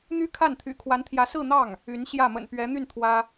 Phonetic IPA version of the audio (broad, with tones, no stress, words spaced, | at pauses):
n̪y˥ kʰa˥˩n t̪ʰy̰˨˩kʰwa˧˥nt̪ʰjä˧˥sɹ̩˥˧ n̪ɑ˥˩ŋ | y˧˥nɕjä˥˩ mə̰˨˩npɥɛ˧˥n̪y˥˩n t̪ʰwä˥